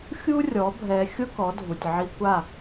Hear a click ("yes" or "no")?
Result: no